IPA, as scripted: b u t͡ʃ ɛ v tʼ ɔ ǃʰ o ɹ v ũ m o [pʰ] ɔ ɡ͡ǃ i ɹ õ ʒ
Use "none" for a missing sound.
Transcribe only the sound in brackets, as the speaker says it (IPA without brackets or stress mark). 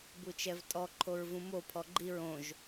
pʰ